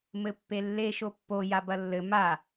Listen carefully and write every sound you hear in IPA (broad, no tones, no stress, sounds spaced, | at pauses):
m ɘ pː e lː e ʃ o pː o j a b ɐ lː ɘ m a